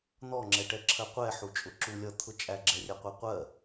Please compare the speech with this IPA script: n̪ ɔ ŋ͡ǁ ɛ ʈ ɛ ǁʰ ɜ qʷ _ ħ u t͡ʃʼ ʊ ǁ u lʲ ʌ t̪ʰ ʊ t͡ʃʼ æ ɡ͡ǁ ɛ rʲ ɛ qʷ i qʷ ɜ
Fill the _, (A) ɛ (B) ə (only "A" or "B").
A